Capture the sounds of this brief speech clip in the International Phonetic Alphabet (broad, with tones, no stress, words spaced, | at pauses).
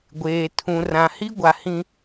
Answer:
ɡʷeː˨tʰũ˨ rã˨hi˦ɡʷa˨ hĩ˦